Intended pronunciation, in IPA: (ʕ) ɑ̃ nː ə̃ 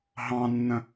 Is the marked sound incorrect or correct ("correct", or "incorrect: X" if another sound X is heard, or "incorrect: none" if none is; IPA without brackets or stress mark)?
incorrect: ɦ